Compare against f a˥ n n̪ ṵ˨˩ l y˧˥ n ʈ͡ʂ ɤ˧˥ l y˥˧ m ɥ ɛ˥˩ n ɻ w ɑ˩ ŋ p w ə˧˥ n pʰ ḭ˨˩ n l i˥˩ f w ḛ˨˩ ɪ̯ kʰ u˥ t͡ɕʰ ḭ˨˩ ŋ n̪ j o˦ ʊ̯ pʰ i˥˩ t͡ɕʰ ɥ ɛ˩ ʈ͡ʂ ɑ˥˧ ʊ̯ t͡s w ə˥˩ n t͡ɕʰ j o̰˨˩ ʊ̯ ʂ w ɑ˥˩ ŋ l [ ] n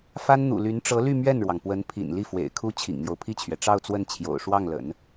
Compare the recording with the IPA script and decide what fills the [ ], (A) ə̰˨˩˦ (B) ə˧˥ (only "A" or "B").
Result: A